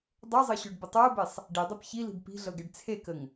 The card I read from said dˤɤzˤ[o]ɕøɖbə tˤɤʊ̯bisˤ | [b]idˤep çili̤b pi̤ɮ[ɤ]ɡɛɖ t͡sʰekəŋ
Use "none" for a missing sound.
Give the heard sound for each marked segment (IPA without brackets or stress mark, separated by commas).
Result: ɤ, ɖ, ɤ